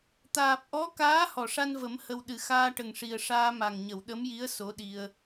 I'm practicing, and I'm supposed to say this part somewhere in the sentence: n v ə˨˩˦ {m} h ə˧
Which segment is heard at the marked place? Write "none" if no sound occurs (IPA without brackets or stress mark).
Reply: m